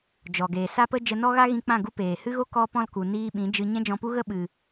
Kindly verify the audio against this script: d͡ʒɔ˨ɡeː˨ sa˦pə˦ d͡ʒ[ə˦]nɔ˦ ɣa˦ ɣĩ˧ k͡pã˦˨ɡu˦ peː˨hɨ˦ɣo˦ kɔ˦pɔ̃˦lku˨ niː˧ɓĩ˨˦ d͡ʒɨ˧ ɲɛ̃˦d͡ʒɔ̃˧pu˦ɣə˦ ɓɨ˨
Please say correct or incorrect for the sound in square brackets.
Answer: incorrect